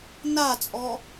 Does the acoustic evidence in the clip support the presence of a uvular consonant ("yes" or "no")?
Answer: no